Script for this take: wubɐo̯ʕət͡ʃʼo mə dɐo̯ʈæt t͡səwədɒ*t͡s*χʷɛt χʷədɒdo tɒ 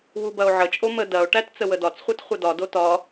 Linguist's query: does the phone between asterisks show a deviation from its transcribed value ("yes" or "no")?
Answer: no